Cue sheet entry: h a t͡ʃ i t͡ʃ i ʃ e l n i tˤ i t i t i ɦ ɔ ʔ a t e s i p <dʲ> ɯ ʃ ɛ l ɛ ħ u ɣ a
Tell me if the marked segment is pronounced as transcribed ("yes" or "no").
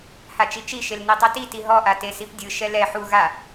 yes